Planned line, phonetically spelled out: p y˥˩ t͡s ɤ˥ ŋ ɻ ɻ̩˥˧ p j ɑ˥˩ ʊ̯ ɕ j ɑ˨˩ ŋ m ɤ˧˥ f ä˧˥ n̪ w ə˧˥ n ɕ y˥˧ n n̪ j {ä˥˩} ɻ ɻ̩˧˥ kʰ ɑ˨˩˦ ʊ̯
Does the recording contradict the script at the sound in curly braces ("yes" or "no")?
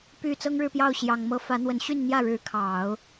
no